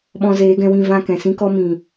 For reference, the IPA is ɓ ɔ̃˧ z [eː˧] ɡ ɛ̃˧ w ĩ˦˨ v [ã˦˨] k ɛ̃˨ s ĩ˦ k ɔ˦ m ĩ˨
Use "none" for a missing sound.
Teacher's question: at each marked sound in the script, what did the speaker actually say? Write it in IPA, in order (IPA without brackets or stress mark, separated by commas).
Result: eː˨˦, ã˦˨